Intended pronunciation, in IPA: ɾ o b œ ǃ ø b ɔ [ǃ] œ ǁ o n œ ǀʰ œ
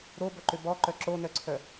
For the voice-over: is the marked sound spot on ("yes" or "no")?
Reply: yes